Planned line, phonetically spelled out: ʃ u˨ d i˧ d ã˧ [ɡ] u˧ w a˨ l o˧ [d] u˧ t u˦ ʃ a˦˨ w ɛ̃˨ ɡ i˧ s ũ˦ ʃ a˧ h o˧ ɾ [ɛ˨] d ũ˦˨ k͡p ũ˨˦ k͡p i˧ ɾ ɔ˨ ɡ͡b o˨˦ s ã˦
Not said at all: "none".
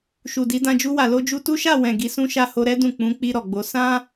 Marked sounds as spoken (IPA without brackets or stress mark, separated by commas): d͡ʒ, d͡ʒ, ɛ˦